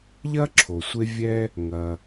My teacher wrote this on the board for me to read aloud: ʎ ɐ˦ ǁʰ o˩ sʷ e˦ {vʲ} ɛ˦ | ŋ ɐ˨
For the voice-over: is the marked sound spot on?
yes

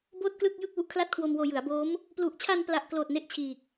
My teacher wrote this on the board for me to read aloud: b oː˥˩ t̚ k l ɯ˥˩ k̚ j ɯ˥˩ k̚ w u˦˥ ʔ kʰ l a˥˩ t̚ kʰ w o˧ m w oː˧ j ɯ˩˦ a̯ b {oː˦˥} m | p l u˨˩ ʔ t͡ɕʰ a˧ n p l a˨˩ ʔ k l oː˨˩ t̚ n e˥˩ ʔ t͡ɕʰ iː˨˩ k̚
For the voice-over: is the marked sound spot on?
yes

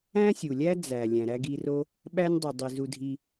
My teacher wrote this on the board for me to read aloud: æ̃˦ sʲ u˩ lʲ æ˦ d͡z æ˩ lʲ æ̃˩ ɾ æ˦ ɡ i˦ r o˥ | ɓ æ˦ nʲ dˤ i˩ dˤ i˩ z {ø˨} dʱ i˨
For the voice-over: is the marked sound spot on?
no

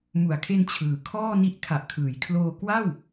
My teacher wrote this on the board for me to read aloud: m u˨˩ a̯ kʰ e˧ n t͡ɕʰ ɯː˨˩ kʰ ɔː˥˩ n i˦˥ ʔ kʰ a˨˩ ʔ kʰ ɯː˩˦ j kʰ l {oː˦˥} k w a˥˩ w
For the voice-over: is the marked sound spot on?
no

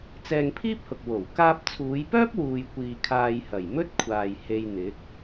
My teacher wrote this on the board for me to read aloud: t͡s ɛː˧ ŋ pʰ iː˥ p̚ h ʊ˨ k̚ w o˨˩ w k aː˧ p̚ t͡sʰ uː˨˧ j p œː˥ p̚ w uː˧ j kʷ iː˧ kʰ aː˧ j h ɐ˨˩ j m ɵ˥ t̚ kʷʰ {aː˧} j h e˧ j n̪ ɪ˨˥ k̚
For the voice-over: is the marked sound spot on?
no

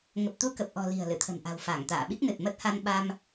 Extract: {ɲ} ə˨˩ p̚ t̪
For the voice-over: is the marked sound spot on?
no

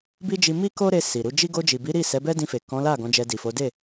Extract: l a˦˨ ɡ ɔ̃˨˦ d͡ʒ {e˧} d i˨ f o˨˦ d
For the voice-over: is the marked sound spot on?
no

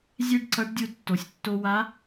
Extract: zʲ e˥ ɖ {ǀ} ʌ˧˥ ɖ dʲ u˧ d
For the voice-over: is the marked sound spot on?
yes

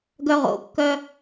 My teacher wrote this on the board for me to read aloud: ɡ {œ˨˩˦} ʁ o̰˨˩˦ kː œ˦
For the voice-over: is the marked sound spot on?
no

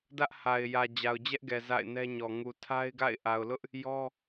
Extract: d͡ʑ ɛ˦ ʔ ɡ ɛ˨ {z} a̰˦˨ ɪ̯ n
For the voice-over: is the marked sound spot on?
yes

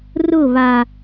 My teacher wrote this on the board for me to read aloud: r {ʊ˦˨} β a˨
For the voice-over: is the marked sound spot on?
yes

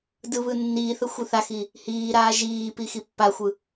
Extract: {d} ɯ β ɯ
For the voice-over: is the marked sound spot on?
yes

